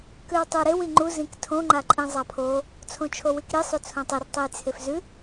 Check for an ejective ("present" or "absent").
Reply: present